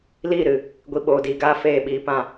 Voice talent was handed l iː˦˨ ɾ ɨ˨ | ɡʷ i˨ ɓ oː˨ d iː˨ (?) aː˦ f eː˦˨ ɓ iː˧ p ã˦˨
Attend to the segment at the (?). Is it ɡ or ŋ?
ɡ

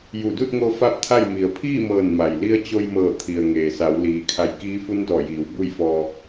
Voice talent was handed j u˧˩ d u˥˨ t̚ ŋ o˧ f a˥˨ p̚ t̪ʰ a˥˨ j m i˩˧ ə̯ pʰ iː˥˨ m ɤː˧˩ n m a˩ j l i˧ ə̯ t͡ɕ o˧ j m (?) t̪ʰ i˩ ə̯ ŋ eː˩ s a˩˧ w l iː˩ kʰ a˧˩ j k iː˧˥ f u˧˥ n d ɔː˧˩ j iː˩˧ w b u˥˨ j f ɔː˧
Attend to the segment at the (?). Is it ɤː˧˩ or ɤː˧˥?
ɤː˧˩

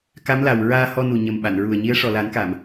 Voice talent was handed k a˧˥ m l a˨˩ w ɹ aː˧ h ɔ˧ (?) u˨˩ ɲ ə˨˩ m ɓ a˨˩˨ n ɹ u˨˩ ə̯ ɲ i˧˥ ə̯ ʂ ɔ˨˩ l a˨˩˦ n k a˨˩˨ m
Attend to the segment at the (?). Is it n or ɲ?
n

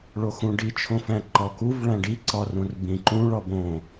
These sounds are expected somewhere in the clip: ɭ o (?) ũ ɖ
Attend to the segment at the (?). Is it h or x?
x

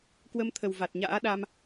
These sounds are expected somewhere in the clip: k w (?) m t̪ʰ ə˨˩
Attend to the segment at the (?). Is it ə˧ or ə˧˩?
ə˧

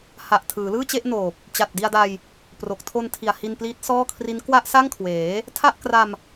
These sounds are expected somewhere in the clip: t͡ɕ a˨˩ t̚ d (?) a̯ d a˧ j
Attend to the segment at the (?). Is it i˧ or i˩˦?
i˧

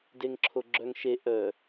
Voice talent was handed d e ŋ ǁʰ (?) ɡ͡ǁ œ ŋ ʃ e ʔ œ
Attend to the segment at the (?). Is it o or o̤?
o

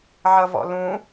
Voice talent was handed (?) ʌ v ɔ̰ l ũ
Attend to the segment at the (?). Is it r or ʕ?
ʕ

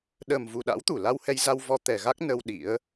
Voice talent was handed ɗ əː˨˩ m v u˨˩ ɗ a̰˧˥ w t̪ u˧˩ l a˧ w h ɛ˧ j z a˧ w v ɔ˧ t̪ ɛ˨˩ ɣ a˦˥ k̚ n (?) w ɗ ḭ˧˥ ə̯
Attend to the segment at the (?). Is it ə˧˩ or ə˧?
ə˧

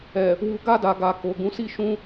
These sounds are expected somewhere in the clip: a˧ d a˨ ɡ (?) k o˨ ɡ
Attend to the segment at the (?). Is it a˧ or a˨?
a˨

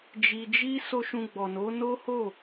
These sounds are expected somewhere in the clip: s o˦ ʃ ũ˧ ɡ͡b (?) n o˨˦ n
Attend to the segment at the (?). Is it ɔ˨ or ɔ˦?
ɔ˨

